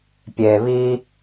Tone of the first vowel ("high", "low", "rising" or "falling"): low